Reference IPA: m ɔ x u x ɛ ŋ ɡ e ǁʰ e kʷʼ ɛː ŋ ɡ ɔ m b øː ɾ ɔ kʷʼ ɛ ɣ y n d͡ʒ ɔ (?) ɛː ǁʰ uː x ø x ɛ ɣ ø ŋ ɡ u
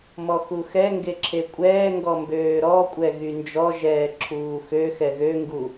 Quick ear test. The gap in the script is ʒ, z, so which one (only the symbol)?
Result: ʒ